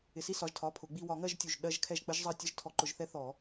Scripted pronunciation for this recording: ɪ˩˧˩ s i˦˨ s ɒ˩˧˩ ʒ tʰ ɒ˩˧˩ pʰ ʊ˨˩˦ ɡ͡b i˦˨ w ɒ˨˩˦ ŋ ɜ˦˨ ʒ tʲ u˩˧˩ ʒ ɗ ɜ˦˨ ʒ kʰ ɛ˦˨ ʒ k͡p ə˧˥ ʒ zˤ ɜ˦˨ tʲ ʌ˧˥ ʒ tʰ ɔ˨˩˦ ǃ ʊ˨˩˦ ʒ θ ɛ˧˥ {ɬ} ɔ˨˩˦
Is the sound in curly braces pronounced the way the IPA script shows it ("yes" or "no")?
no